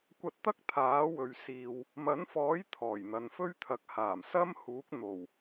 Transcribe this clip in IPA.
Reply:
kʷ ɐ˧ t̚ t̪ ɐ˥ k̚ t̪ʰ aː˨˥ w ɵ˨ ɥ s iː˨ w | m ɐ˨˥ n f ɔː˨˥ j t̪ʰ ɔː˨˩ j n̪ ɐ˨ n f ɵ˥ ɥ t̪ʰ ɐ˨˥ k̚ h aː˨˩ m s ɐ˥ m h uː˨˥ k̚ n̪ o˨˩ w

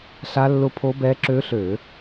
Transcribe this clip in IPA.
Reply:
ɬ a˦˥ lː ʊ˦˥ pʰ o˦˥ b ɛ˦˥ ǁ ø˦˥ ɬ ø˧˩˧

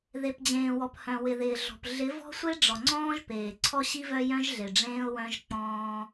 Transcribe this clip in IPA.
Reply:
ð e˨ p d͡ʑ ẽː˨ w ɔ˨ p h œ̃˨ w ɪ˨ ð ɪː˨ ɮ ɔ̤˨ p ɮ ɪ˨˦ v ɔ̤˦ sʷ e˦ ɖ͡ʐ ɔ˨ ŋ͡ǀ ɔ̃ː˦ ʒ p eː˨ ǀʰ ɔ˦ ɕ i˦ v œ˦ j œ̃˦ ʒ ɮ e˨ ɖ͡ʐ ẽː˦ ʊ̯ w œ̃˦ ʒ k͡p ɔ̃ː˦

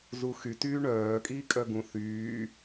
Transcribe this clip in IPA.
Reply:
z u x y t yː ɳ œː kʼ iː kʼ œ ɡ ũ θ yː

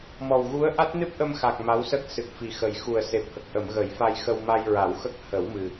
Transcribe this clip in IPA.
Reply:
m ɔ˨˩ w ɣ u˧˥ ə̯ ʔ a˦˥ t̚ n ɨ˦˥ p̚ ʔ ə˧ m x a˨˩ k̚ m a˧˥ w s ə˦˥ k̚ s ɨ˨˩ k̚ f i˨˩ x ə˨˩ j x u˨˩ ə̯ s e˨˩ p̚ h ə˨˩ k̚ ʔ ə˨˩˨ m ɣ ə˨˩˦ j f a˧ j x ə˧ w m a˧ j ɹ a˨˩˦ w x ə˦˥ k̚ h ə˨˩˦ w m ɨ˨˩

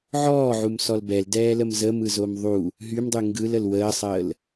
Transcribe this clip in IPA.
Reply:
ʕ ɔː ʕ u m s ɔ l b ɛ l d ɛː l ə m z ə m ɯ z o m ðˤ u | ɦ y m dˤ y ŋ ɡ ɯ l ə l w əː sˤ əː l

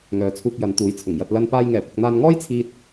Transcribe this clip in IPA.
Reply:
ŋ œː˨˧ t͡sʰ uː˧ k̚ j ɐ˨˧ n t̪ uː˨˧ j t͡sʰ ʊ˨˩ ŋ j ɐ˧ t̚ l ɐ˧ n p aː˧ j ŋ ɛː˨˩ p ʊ˨ k̚ n̪ aː˧ n ŋ ɔː˥ j t͡sʰ iː˧ t̚

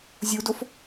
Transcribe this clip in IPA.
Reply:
zʲ u d o f

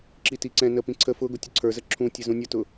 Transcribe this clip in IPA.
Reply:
ǁ i t i ǀ ɛ̃ n ə p ĩ ǀʰ ə f ʊ ɡ ʊ tʲ ʊ ǀʰ ə˞ z ə ǁʰ ũ tʲ ə z ũ nʲ ə t ʊ

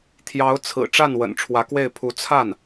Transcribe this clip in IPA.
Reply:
t̪ʰ j ɑ˧˥ ʊ̯ t͡sʰ ɹ̩˨˩ ʈ͡ʂ a˥˩ n w ə̰˨˩ n ʈ͡ʂʰ w ä˧˥ k w e˥˩ ɪ̯ pʰ u˧˥ t͡sʰ a˥˩ n

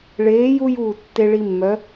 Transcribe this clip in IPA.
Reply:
ɭ eː˨˥ j u˦ j uː˧˩ tː e˦ ɭ i˦ mː œ˨˥

